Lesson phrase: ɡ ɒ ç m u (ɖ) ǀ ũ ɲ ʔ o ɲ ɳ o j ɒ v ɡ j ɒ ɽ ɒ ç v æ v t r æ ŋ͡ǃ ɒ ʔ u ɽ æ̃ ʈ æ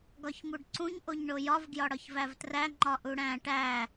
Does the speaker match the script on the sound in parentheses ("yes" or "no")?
yes